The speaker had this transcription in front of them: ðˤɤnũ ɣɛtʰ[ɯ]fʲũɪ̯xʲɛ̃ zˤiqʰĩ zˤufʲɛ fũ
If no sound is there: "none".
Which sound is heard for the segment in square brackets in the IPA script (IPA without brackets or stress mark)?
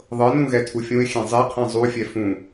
u